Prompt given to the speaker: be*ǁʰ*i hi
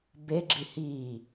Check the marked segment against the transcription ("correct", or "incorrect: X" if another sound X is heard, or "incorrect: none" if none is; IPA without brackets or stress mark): incorrect: ɡ͡ǁ